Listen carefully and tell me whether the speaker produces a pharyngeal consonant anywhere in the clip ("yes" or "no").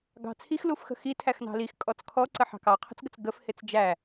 yes